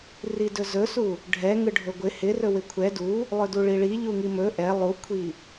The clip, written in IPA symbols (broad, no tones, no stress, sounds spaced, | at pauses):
r i d ɵ z ɵ s u | ɖʱ ɛ ŋ ɯ ɖʱ ɵ ɡʷ ɪ h ɪ r ɵ w ɪ kʷʰ ɛ d u | lˠ ɵ d u ɭ i ɭ i ʎ u ŋ i m ɵ ʔ ɛ lˠ u kʷʰ i